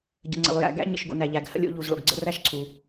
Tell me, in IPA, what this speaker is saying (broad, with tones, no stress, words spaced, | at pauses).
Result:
ɟə̰˩ ŋ͡ǀə̰˩lˠ jæ̰˩ɡæ̰˥˩ ɲə̰˩ʃɡo̰˩ næ˩ʎæ˩ɡ hə̰˥˩lʲo̰˥˩ʎu˩zɭo̰˩ɡ ɡ͡ǀə̰˥˩ræ˥˩ʃǀʰu˩